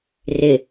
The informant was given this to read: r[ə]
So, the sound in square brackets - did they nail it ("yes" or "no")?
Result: no